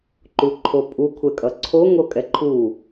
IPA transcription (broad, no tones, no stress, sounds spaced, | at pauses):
ǃ u ǃʰ o pʼ u kʷʰ ɛ kʼ ʌ ǀʰ o ŋ o kʼ ɛ ǃʰ u